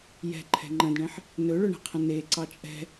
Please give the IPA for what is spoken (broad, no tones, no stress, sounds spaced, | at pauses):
j ɛ̤ ǃʰ ɛ̤ ŋ͡ǃ ə̃ d ɳ ẽ ħ | n ɵ ɭ ɵ ɳ ɛ̤ qʰ ə̃ n e ǀ ɑ t͡ʃʼ ɛ̤